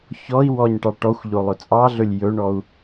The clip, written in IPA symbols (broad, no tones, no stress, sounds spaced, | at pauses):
ç ɔ i̯ w ɔ ɲ ʈ ɑ ʈ ɔ xʷ ʎ o lˠ ɵ t͡sʼ ɑ ɮ ɵ lʲ j ɵ ɳ ɔ u̯